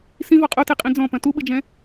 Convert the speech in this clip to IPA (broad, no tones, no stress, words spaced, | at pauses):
sĩvɔ qʼoteqʼĩ d͡zɔ̃pɐ̃ tuɓɨd͡ʒɛ̃